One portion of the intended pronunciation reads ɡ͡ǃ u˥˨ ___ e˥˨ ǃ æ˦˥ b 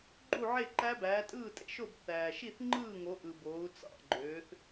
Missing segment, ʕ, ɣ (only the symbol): ʕ